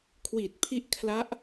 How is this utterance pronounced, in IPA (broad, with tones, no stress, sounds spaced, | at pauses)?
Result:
kʰ w iː˨˩ t̚ pʰ i˦˥ ʔ kʰ l a˦˥ ʔ